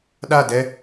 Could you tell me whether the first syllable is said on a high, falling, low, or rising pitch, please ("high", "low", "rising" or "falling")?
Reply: falling